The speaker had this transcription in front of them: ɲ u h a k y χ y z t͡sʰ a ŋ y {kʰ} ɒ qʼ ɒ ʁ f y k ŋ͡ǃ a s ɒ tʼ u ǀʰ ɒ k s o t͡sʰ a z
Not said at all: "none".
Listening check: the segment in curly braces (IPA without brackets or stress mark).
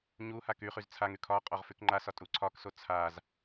kʰ